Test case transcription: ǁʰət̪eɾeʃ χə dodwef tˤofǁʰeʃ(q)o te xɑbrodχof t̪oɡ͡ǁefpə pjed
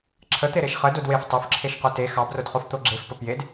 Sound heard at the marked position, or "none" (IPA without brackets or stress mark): q